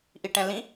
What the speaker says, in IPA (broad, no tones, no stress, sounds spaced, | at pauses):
ʔ i ʈ ɛ̃ l ĩ